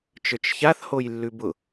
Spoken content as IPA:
t͡ʃə˞t͡ʃçaθ hojlːʉbʊ

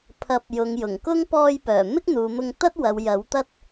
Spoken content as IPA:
pʰɐ˨˥p̚ jʊ˨ŋjʊ˨˩ŋ kʊ˥ŋ pɔː˧jpœː˨˩ mɪ˥k̚n̪uː˨mʊ˧ŋ t̪ɐ˥t̚wɐ˨w jɐ˨˥w t̪ɐ˥t̚

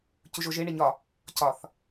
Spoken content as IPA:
cuʒoʒe ɳeɲɒ | cɒθ

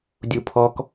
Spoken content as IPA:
dʲupʰɔk

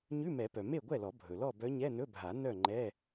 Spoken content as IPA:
ɲʉ˧˥˧mɛ˨˩˦pœ˩ me˥˨ɡʷɛ˥˨lɔ˨˩˦ bʱɵ˩lɔ˥˨ bœ˧˥ɲɛ˧˥˧nɵ˧˥˧bʱa˨˩˦ nœ˥˨ŋ͡ǃɛ˧˥˧

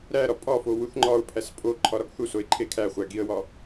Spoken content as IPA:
ɾæɾɒ pʼɒfo wuθŋ͡ǃɒʊ̯pʰæs pʼo ǃʰɒɾɒɡθusoɪ̯ ǃʰekʰæχʷæ ɡiə̯wɒ

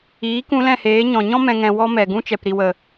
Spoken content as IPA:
iː˨˦kũ˧ lɛ̃˦˨heː˨˦ ɲɔ̃˨ɲɔ̃˦ mɛ̃˧ ŋɛ̃˨wɔ˧ mɛ˨ ɡũ˧t͡ʃɛ˨pɾi˨wə˨

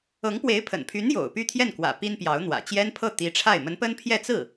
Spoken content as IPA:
ɤ˧˥ŋpwe˧˥ɪ̯pʰə̰˨˩npʰy˧˥n jo̰˨˩ʊ̯py˥˧t̪ʰjɛ˥˩nkwä̰˨˩ pi˥npjɑ˧˥ʊ̯n̪wä̰˨˩ t͡ɕjɛ˥npʰɤ˥˩t̪i˧˥ʈ͡ʂʰa˥˩ɪ̯ mə˧˥npə˥npʰjɛ˥˧ t͡sɹ̩˥˩

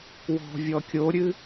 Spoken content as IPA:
wɔ̤ vʲɔkʲoɾʲɨ

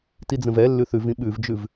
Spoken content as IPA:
tid͡zə̃vɛlːʉ θʉvĩ ɓʉvd͡ʒʉv

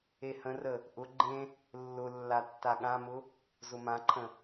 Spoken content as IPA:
ehə̃rə | ʔʊ ɡ͡ǃẽ | lːʊ lːatːaɠãmʊ | zʊmãǃʰə̃

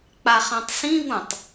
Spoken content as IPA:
k͡paχãtˤsĩvũtˤ

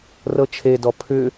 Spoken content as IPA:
rɤt͡ʃʰedɔ pʰʏ

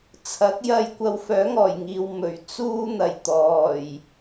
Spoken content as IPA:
t͡sʰɐ˨˥k̚jɐ˧jkʷɐ˧w fœː˨˥ŋɔː˨˩jŋiː˨w mɵ˨˩ɥ t͡suː˧n̪ɐ˨˩j t̪ɔː˨˩j

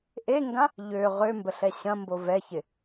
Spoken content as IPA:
ʔeŋɡã | ʎø ʁømbəɬɛ ɕɐ̃mbo vɛçɪ

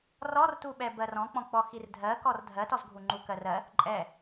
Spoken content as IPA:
rɔrtuɓɛ bɜrɔ̃k͡pɔ̃k͡pɔ xirdʱɜkɔr dʱɜtɔzɡʱu ŋ͡ǃukɜrɜ | ǃʼɛ

